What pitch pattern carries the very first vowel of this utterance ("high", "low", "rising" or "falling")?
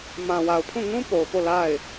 low